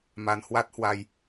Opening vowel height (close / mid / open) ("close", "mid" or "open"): open